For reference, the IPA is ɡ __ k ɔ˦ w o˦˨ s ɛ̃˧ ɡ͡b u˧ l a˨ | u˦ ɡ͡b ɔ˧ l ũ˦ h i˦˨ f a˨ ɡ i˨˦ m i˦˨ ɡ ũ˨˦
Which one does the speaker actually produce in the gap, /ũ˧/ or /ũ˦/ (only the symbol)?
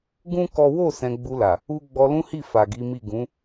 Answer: ũ˦